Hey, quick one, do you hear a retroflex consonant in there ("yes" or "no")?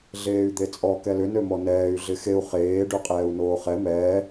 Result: yes